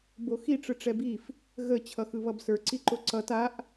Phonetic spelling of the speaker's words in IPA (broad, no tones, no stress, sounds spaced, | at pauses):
b o x i ʈ͡ʂ ɯ ʈ͡ʂ ɛ b i f | ɣ ə t͡ɕʰ ʌ x ɯ β ʌ b s ə˞ ǀ i ǃ o ǀ ʌ t a ʔ